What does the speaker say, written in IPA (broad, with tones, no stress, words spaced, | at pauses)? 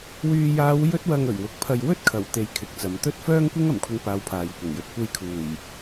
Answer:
wyː˨jaː˨˧w jɵ˥t̚wɐ˧ŋ ɵ˨˩ɥwʊ˨˥k̚pʰɐ˧j wɵ˥t̚kʰɐ˨˩w t̪e˧jkʰɪ˨˥k̚t͡sɐ˨˥m t̪ɵ˥t̚ fœː˥ŋkʷɪ˥ŋ ɐ˨˩mkʷʰɪ˧ŋpaː˨˧w pʰaː˨j kʷɪ˨˩ŋjɵ˨t̚kʷe˧j kʰuː˨˩j